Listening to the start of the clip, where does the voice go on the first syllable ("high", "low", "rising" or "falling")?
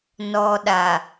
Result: low